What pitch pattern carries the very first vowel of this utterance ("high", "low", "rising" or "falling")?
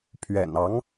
low